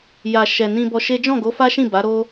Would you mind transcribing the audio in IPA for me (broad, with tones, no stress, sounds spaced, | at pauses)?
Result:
j a˨ ʃ ɛ˨ n ĩ˧ b ɔ˧ ʃ e˦ d͡ʒ ɔ̃˦˨ ɡ o˨˦ f a˦ ʃ ĩ˦˨ b a˨˦ ɾ o˦